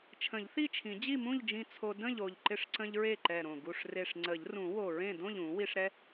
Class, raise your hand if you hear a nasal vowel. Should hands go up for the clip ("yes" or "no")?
yes